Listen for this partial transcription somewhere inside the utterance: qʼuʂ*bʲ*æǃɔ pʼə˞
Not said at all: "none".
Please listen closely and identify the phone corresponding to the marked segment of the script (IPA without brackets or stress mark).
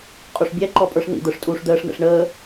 bʲ